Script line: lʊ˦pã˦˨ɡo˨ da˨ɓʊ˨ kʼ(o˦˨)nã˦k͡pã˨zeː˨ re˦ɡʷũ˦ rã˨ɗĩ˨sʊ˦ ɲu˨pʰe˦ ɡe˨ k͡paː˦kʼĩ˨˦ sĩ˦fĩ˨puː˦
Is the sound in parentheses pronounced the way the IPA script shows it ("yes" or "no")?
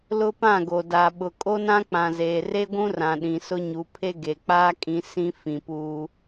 no